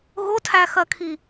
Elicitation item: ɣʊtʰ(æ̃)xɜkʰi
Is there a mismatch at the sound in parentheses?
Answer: yes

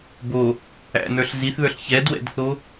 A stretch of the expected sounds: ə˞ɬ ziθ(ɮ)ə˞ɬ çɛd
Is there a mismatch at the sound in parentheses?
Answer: yes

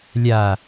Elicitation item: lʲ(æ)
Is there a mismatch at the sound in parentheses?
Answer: yes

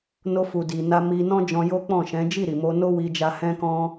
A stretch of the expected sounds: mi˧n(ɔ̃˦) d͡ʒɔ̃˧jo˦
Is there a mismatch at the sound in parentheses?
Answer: no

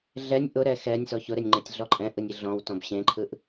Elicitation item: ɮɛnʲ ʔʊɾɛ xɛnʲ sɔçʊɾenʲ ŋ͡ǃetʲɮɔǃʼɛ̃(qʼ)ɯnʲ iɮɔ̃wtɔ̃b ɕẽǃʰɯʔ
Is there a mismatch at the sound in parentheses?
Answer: yes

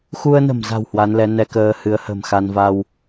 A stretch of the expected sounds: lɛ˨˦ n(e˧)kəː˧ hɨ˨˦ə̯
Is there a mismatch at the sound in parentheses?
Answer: yes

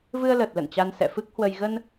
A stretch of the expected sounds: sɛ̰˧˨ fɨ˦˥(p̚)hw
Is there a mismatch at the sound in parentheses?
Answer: yes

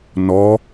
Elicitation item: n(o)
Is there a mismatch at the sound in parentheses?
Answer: yes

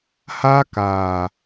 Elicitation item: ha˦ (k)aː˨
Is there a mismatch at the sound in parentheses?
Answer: no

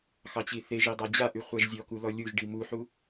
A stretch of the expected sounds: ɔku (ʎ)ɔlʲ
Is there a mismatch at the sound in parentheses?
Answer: yes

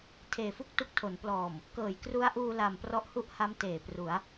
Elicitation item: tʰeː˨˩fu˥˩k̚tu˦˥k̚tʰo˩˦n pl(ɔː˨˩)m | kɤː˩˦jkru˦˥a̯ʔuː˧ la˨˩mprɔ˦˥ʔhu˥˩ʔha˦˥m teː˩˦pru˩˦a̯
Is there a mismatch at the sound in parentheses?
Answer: no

